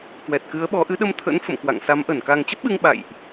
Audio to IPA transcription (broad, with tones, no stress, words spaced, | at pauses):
kwɛ˨˩t̚kɨ˨˦ə̯ɓɔ˨˦ ʔɨ˨˦ɗə˧mt̪ʰə̰˧˥n fə̰˧˨mkwa̰˧˨ŋ sa˨˦mʔə˧˩n ka˨˩ŋt͡ɕə˦˥p̚ɓɨ˧ŋ ɓa̰˧˨jʔ